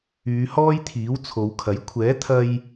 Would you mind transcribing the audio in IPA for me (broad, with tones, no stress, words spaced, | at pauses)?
yː˨˧ hɔː˥jt̪ʰiː˨˥w t͡sʰo˨˧wkʰɐ˨˥j kʷʰɛː˨˥t̪ʰɐ˧j